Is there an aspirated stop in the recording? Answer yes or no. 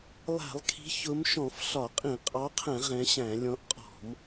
yes